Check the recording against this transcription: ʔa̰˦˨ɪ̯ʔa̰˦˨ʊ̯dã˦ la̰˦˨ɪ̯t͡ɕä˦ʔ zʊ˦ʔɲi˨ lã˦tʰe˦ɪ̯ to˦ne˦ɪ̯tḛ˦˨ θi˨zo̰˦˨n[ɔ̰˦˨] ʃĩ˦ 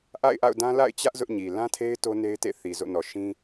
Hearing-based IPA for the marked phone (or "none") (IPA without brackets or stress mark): ɔ˨